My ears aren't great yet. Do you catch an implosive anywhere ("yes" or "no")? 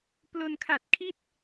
no